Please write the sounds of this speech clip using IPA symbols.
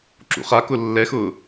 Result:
ǁ ṵ χ a k ʊ lː ɛ x ʊː

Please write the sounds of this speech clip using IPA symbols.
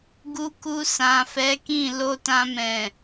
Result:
ɡ u˧ k u˧ s ã˨ f ɛ˨˦ k ĩ˦˨ l o˧ t ã˧ m ɛ̃˨

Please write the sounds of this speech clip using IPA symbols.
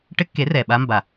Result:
ʈ ɘ˦ kː e˨˥ r ɛ˨˩ ɓ a˦ m b a˨˩

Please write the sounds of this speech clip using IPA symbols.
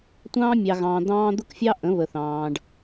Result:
tʷ ɑ̃ː˦ mʲ ɑ˨ ɣ ɑ̃ː˨ d̪ ɑ̃ː˦ d̪ ʊ˦ k fʲ ɑ˦ ʔ ə̃˨˦ β ə˨ θ ɑ̃ː˨ ɖ

